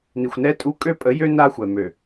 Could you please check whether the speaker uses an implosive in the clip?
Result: no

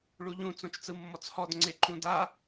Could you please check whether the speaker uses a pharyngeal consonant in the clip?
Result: no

